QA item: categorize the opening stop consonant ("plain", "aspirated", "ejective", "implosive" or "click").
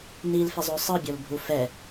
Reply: plain